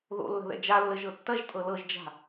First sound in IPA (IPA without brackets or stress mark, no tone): ð